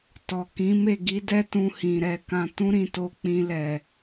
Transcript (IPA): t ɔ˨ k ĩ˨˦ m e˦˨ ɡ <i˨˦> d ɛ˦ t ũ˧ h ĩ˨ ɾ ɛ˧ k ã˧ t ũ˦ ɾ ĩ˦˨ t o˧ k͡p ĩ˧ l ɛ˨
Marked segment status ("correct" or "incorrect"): correct